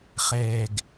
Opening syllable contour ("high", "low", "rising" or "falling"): falling